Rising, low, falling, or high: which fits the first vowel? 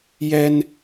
high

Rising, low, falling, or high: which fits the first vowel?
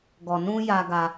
low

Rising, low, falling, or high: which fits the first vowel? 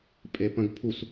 low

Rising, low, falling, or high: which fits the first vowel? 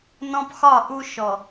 high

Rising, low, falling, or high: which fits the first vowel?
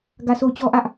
falling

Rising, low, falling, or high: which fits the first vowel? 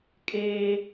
high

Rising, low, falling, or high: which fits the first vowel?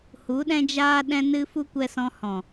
rising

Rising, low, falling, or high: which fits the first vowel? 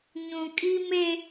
low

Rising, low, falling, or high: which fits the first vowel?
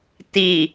low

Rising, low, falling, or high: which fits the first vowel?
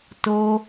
high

